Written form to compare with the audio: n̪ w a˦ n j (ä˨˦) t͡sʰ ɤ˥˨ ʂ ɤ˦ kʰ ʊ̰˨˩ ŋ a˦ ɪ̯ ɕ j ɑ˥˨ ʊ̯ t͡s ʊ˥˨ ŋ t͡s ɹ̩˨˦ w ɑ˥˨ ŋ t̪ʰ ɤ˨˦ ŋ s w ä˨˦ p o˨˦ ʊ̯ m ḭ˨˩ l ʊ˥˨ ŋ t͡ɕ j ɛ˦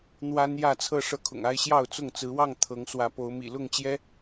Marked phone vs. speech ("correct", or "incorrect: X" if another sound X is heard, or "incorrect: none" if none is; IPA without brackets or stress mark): incorrect: ä˥˨